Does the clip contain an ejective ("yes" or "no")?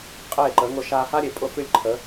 yes